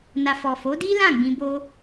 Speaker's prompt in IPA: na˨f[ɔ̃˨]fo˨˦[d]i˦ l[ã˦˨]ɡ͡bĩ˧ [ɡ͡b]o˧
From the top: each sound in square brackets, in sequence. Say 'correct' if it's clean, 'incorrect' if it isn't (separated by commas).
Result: incorrect, correct, correct, incorrect